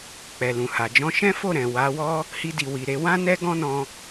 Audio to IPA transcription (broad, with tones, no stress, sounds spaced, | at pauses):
k͡p ɛ˨ l ũ˨ h a˨ d͡ʒ ɔ̃˧ ʃ ɛ̃˦ f o˦˨ ɾ ɛ̃˨ w a˨˦ w ɔ˦ | h i˧ d i˨ w i˨ ɾ e˧ w ã˦ n ɛ˦ ɡ ɔ̃˦ n ɔ̃˧